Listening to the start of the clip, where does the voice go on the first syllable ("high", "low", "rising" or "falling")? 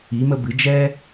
rising